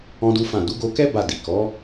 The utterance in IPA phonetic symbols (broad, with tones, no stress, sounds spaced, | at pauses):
ɔ̃˦ d u˦ f ã˦˨ d u˨˦ ɡ o˧ k ɛ˦ b a˦˨ d i˨ k ɔ˨˦